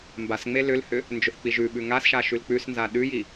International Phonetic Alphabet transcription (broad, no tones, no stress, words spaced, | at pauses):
mbasŋ͡me lʏlhʏ | nd͡ʒʏθk͡piʒʉɓʉ ŋasʃa ʃʉlk͡pʉsnza ɗʉji